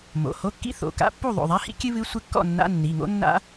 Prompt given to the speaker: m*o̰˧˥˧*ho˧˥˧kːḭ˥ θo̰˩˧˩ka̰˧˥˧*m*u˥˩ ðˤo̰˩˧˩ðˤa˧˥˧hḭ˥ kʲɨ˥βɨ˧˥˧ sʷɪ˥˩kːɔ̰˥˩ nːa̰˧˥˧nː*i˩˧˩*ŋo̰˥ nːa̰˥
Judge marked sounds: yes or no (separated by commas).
no, no, yes